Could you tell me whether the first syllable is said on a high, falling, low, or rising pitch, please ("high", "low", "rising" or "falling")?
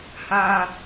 high